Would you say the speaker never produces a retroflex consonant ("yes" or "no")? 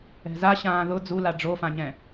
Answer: no